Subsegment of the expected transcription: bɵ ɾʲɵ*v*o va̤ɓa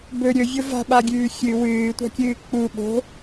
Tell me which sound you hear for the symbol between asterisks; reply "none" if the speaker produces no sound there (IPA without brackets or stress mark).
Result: vʲ